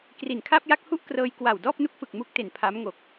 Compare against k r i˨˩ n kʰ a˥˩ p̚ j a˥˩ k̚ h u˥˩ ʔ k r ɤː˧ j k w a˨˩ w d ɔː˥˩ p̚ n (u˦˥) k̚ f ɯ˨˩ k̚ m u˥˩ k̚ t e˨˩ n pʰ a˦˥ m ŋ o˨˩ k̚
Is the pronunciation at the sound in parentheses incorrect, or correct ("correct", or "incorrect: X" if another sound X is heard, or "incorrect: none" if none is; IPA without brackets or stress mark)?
correct